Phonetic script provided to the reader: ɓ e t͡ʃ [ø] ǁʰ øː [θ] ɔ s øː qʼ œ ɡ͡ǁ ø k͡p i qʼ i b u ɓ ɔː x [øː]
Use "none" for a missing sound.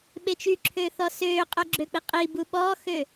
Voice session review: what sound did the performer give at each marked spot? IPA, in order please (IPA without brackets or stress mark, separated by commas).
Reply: y, θ, øː